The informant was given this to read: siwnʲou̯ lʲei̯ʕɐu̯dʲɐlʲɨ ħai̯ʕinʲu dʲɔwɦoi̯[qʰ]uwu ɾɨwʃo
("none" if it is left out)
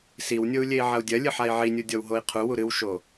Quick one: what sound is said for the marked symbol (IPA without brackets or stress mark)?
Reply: qʰ